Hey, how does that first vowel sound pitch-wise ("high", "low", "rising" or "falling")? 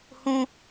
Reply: high